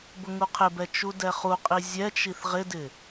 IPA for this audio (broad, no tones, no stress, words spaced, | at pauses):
bʊŋuqʰɪbɛ t͡ʃudɛχuqʼi zʲɛt͡ʃiθ ʁɪdɪ